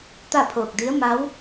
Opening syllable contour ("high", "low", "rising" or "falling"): falling